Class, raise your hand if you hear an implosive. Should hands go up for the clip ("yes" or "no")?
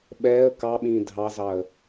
yes